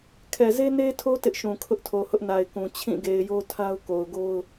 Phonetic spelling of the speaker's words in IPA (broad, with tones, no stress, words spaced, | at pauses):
kʰɛ˨ze˦ne˦tʰo˦ tɪ˦ʔ ʃũ˨kʰʊ˦ʔtʰo˨ hʊ˦ʔna˨ɪ̯ kũ˨ t͡ɕʰĩ˦˨ɡe˨ɪ̯jo˦tʰa˦ʊ̯ ko˨ʊ̯ɡo˦ʊ̯